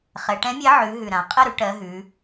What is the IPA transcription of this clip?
χɛ˩˧ʈɛ̃˨˥mʲɛ˨˥ ʕʉ˩˧ ɦʉ˨˩ɾã˩˧ qʼə˦˨ɾʉ˩˧ ʈɜ˩˧ɦʉ˩˧

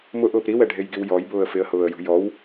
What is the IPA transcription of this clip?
mʊʔʊːp ɾiwɛɖʱejɡiw jɔjbʊːə̯ fɪə̯hʊːə̯jṳ jɔw

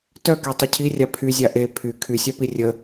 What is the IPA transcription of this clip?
tœketˤʊ cʰirʲa pʰyzʲa ʔe pʰy kʰysʲapi rʲə

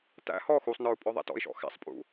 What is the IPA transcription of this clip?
tæ̰ hɔ xusˤnə˞u̯ pʼɔðˤæ̰tɔ̰i̯ʃɔ̰ xæ̰sˤpʼṵ

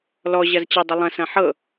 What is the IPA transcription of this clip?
lɔ ʑɐzt͡ɕɐ dˤəlˠɐ̃s ɐ̃ħɤ

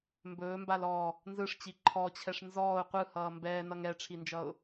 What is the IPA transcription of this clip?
mbɵːmbal ɔ | nzɯʂt͡ɕi ǃʰɔt͡ɕʰɛʂ nzɔːʊ̯ qʷɯhʌː mbɛːnʌŋ ɛʈ͡ʂʰind͡ʒʌʊ̯

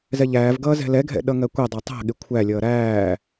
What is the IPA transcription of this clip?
zɛʎæːv ɡʌːzɛ̤lɛɡʱɛ̰ ɗʌŋɜkʷɛ dˤʌtˤæ̤ɠɪ kʷʰælʲʌː ɾæː

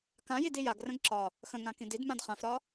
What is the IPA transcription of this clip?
kãjidi jaɡrə̃ɡ ǁɒ | xə̃ŋãkĩ didmãd χãfɾɒ

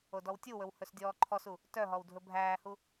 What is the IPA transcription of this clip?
odɔwtʲuwɵw hɵsdʲɔːǃʰɔsu | tœɦɔw dʱɵbʱæːhu

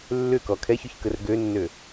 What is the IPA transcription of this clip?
lːʏkɔ kʰɛçʏçkər ɡønːø

